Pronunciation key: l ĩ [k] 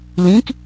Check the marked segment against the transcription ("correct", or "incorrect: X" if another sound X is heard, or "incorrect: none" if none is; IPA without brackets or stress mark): correct